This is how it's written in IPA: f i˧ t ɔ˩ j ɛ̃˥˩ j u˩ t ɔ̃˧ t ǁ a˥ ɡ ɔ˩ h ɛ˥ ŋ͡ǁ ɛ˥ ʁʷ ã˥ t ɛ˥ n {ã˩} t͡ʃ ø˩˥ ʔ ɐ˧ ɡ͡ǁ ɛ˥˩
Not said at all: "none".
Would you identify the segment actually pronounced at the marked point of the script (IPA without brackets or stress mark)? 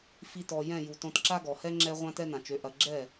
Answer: ã˩